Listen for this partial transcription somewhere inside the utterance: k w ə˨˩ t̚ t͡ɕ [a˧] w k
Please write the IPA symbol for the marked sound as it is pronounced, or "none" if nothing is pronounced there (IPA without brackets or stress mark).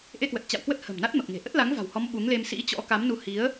a̰˧˨